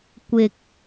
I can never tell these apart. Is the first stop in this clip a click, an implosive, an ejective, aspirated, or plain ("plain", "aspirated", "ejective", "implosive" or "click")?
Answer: plain